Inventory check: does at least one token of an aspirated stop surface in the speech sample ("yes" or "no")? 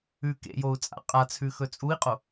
yes